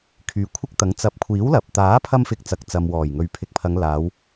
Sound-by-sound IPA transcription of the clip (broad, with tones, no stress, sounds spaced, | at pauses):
kʰ yː˨˧ kʷʰ ɪ˥ k̚ t̪ ɐ˨˥ ŋ t͡s ɐ˨˥ p̚ kʷʰ iː˨˥ w l ɐ˨ p̚ t̪ aː˨˥ pʰ ɐ˧ m f ɪ˧ k̚ t͡s ɐ˨ k̚ t͡s ɐ˨ m w ɔː˨˩ j ŋ ɵ˨ ɥ pʰ ɪ˨ k̚ pʰ ɐ˨˧ ŋ l aː˨˧ w